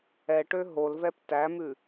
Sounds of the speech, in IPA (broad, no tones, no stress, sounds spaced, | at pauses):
ɛ ʈ ø ɦ o l v ɛ p t æ m ʉ